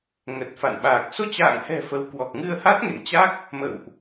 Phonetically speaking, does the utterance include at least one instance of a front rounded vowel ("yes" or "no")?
no